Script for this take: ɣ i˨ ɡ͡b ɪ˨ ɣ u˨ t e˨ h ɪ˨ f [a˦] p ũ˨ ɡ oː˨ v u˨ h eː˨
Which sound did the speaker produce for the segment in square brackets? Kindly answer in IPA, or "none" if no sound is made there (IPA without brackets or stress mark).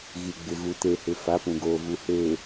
a˨˦